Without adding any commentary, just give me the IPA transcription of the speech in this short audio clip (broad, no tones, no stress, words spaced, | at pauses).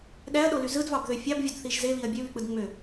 ɗæɐ̯ɗoly zɯdvɑbðø fʲɑbvʲodθiʒ zeβiɐ̯ bʲøβyk͡pɯd ŋ͡mø